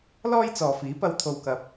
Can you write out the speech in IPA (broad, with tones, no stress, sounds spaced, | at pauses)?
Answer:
l ɔː˥ j t͡s ɔː˨ f iː˨˥ p ɐ˧ w t̪ʰ o˨ w k ɐ˨ p̚